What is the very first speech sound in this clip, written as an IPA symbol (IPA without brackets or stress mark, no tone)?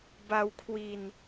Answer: b